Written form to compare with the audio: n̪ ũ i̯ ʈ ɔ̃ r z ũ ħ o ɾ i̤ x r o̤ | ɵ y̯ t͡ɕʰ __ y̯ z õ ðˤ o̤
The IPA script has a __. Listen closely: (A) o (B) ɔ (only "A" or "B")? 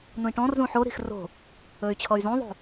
B